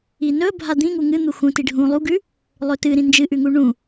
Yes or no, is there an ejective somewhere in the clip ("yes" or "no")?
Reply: no